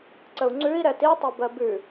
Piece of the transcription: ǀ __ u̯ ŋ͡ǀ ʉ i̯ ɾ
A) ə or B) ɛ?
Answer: A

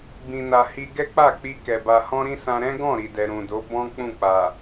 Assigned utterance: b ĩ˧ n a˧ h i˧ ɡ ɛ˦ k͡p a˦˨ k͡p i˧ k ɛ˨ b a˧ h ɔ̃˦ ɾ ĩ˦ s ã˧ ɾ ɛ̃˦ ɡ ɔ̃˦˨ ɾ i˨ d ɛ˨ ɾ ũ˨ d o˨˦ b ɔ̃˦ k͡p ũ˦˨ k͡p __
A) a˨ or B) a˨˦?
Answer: A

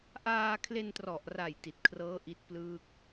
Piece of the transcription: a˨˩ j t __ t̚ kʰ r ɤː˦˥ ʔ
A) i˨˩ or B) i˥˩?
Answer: A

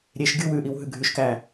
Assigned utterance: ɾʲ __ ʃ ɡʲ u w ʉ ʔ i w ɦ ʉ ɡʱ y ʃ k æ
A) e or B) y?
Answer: A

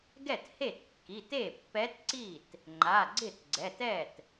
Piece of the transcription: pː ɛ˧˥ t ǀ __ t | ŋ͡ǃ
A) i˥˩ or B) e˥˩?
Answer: A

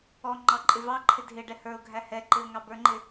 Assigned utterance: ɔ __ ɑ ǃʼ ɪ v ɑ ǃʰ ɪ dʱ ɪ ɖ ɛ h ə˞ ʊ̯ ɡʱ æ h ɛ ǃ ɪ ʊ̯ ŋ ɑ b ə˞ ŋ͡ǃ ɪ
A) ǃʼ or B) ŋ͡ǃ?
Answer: B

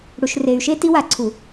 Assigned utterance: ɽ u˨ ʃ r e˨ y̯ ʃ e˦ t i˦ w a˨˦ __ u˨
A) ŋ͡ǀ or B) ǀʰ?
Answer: B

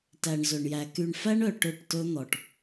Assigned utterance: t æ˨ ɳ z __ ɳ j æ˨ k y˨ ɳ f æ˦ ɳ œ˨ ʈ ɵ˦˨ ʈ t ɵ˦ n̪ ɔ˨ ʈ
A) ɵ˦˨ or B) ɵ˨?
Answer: B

